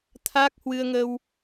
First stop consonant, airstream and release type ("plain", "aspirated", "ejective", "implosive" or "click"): aspirated